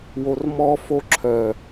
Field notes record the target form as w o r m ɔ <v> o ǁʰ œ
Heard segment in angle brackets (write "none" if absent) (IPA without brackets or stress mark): f